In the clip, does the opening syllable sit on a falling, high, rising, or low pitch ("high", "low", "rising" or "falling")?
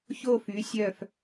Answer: falling